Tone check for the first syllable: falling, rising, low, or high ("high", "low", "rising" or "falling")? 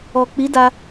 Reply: low